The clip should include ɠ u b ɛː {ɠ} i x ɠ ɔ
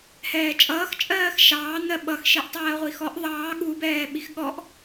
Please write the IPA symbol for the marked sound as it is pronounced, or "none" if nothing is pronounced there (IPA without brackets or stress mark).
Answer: ɓ